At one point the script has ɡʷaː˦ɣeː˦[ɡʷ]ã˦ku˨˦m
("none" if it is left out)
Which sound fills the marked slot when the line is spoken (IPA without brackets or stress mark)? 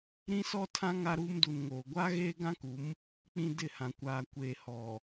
ɡ